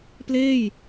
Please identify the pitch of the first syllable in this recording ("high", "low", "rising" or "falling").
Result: falling